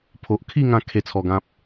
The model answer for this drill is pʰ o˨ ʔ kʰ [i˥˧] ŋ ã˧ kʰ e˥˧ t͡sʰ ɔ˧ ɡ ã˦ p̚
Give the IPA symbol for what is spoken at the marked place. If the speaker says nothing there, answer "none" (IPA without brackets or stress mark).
i˥˧